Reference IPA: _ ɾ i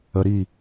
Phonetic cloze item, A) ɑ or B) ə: B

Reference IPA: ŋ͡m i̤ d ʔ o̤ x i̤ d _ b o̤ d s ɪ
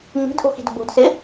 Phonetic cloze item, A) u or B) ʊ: B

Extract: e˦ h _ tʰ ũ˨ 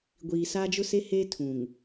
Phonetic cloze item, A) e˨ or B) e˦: B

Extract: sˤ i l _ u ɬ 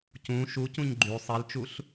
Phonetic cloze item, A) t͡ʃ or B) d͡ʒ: A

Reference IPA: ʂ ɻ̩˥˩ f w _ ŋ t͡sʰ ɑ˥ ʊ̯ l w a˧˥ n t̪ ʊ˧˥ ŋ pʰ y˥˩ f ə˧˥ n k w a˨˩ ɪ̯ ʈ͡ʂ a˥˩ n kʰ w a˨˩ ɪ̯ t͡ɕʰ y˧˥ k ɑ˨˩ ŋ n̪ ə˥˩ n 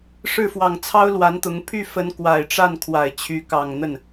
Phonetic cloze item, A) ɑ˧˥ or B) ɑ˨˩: B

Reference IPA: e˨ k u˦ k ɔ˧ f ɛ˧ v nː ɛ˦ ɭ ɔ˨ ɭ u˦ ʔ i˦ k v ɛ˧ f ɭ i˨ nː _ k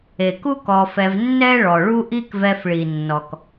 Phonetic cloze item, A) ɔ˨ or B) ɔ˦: A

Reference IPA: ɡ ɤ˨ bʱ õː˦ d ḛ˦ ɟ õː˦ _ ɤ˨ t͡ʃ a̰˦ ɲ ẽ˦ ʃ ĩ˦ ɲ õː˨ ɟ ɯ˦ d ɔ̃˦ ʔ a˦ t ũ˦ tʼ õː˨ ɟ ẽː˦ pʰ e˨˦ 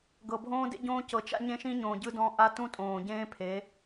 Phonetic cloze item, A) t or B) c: B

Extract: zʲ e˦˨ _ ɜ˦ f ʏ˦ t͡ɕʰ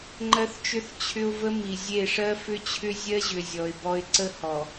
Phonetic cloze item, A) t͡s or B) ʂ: B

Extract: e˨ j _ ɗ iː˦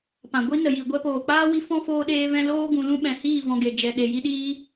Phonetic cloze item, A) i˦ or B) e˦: A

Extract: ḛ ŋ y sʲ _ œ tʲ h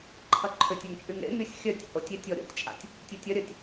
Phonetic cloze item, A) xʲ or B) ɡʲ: A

